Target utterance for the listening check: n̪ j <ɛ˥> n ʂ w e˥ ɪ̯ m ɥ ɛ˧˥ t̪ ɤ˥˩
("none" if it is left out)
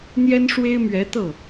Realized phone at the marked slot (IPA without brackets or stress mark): ɛ˥